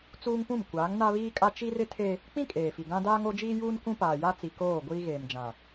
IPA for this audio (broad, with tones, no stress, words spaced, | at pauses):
t͡suː˦ŋpũ˦˨m kʷaː˨˦ŋna˦ βiː˦kʼa˦ t͡ʃi˦rɪ˦ tʰe˦ | k͡pĩ˦ kʼeː˨fi˨ɡã˦ daː˦ŋo˦d͡ʒiː˦juː˦n kʷũ˦paː˨ja˦t͡si˨ koː˦˨ɡʷiː˦ɣeː˨md͡ʒã˨